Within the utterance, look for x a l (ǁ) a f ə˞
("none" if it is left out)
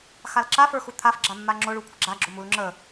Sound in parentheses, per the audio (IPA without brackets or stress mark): ǁ